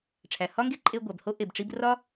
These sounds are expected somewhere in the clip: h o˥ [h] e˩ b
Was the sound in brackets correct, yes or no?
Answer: no